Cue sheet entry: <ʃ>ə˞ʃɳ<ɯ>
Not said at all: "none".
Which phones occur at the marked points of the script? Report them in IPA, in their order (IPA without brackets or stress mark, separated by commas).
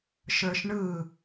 ʃ, ɯ